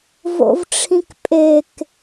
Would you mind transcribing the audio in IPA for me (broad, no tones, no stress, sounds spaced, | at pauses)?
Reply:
v o̰ v ʈ͡ʂʰ ĩ k pʼ e k